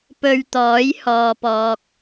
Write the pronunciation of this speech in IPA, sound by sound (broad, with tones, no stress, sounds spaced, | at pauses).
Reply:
p ɵ˧ ɥ t̪ ɔː˨˥ j h ɔː˨ p ɔː˨ k̚